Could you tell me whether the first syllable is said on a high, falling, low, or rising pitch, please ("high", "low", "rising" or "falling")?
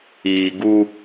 low